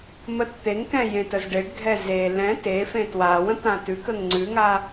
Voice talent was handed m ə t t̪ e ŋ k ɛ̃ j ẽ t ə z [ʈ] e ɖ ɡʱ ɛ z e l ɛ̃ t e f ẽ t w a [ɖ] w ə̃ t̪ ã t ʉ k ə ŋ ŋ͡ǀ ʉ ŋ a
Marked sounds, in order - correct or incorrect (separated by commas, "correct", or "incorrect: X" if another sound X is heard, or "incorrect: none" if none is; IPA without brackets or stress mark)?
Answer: incorrect: ɖ, incorrect: none